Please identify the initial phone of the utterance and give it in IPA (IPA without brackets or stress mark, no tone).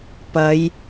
p